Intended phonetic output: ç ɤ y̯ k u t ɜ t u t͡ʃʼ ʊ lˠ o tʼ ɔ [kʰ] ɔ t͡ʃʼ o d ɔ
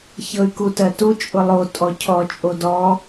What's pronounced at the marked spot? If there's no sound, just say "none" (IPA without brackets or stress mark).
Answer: cʰ